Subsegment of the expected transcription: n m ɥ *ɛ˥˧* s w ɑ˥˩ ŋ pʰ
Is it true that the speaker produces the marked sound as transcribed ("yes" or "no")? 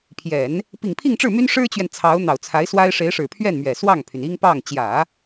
no